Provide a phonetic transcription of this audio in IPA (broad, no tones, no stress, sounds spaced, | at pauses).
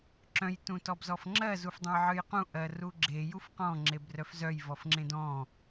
ǁ œ̃ j t ũ t ɔ b z ɔ f ŋ͡ǁ ɜ z u f dˤ ẽ j ʕ ɨ j q ũ ʔ ɜ r u ɡ͡ǁ e j u f q ɔ̃ ŋ͡ǁ e b r œ f z œ j v ɔ f ŋ͡ǁ ẽ d ɔ̃